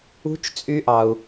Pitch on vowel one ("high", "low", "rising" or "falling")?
rising